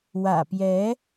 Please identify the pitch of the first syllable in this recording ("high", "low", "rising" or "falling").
low